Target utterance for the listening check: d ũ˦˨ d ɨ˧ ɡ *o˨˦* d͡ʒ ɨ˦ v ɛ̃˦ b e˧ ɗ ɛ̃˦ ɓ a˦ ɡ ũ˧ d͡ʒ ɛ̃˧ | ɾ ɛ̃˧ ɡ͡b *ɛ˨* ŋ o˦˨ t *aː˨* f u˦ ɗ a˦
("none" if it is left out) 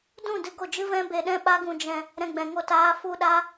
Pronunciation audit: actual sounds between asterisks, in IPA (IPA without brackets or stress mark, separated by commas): o˦˨, ɛ̃˨, aː˦